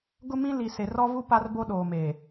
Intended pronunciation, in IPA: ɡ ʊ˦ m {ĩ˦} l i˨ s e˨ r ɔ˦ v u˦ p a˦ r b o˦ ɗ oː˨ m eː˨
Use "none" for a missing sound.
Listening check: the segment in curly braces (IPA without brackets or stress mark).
ĩ˦